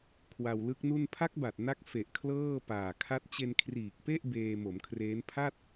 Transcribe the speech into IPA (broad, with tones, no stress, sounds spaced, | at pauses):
kʰ w a˧ w l ɯ˦˥ k̚ n u˥˩ n pʰ a˦˥ k̚ b a˨˩ t̚ n a˦˥ k̚ f e˨˩ ʔ kʰ l ɤː˥˩ p aː˨˩ kʰ a˦˥ t̚ t͡ɕ e˧ n kʰ r iː˨˩ k̚ p e˥˩ ʔ b eː˧ m o˩˦ m kʰ r eː˦˥ n pʰ a˥˩ t̚